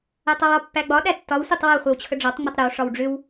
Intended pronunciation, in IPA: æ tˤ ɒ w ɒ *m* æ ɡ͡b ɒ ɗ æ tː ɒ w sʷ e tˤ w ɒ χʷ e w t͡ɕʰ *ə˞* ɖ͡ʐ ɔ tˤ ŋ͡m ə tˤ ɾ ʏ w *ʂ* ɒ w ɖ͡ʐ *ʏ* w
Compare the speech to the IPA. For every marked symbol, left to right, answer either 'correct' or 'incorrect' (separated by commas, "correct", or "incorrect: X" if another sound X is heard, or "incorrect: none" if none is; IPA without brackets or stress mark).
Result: incorrect: pː, incorrect: ə, correct, correct